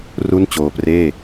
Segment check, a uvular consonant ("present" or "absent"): absent